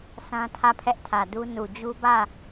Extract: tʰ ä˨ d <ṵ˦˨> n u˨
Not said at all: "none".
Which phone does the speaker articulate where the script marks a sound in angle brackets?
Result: u˦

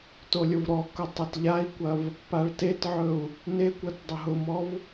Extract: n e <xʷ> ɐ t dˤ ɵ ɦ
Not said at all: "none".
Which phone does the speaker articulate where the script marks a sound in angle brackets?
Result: kʷ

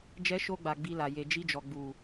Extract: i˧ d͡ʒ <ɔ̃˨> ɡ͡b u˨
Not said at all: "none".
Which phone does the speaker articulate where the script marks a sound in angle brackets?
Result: ɔ˨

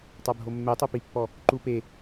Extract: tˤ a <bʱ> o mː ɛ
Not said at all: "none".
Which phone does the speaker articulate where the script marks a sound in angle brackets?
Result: bʱ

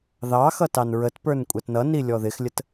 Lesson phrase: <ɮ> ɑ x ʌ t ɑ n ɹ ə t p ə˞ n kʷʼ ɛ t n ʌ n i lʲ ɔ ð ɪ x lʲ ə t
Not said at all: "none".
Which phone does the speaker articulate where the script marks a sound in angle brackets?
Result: ð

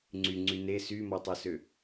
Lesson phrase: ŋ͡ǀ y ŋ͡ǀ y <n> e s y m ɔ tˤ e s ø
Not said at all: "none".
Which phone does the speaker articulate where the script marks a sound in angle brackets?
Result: n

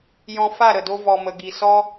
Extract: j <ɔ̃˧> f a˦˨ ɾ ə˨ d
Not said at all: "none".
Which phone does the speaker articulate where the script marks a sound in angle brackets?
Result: ɔ̃˧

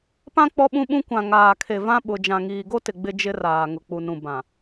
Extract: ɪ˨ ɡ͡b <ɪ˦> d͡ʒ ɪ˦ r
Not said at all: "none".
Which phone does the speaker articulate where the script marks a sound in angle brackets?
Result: ɪ˦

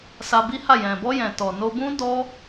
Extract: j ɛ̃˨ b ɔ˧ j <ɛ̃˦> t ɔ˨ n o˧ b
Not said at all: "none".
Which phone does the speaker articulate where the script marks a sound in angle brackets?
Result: ɛ̃˨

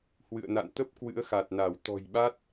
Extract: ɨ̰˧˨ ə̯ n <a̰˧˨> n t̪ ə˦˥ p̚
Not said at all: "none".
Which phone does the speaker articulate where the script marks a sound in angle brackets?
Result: a̰˧˨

